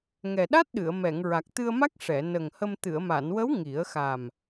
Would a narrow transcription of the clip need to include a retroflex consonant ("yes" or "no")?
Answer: yes